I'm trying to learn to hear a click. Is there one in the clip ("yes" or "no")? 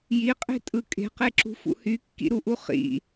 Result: yes